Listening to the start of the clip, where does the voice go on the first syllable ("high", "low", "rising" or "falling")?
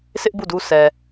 high